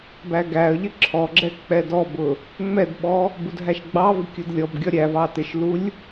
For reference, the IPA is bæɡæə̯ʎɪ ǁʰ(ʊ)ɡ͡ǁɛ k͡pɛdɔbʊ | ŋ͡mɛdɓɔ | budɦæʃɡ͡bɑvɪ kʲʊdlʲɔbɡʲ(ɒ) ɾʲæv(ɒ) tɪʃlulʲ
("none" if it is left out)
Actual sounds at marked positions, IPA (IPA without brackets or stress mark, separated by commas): ɔ, ɒ, ɑ